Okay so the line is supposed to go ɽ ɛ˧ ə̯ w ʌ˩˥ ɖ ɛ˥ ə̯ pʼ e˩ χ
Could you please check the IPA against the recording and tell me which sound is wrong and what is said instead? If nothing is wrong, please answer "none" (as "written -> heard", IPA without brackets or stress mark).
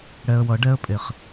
none